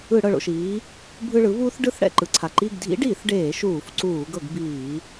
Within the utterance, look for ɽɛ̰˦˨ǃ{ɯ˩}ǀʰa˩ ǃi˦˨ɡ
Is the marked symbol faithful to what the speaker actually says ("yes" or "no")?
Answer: yes